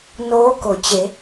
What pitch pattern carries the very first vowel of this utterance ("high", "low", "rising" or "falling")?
rising